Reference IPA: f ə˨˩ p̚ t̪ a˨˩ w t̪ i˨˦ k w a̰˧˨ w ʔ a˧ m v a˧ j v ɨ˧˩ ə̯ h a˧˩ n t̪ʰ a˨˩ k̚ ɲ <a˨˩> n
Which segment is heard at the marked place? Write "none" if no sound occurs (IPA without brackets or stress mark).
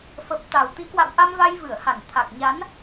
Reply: a˨˦